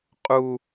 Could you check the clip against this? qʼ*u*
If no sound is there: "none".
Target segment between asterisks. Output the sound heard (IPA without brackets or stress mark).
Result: u